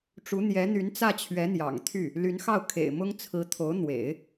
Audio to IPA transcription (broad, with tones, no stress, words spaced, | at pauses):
ʈ͡ʂu˧˥ n̪jɛ˧˥n̪y˧˥n t͡sä˥˩t͡ɕʰɥɛ˧˥n̪jɑ̰˨˩ŋ t̪ʰy˥˩ | ly˧˥nxɑ˥˩ʊ̯ kʰḛ˨˩ɪ̯mʊ˥ŋ t͡sʰɹ̩˧˥t̪ʰo˧˥ʊ̯ n̪wḛ˨˩˦ɪ̯